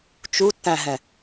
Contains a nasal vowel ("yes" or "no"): yes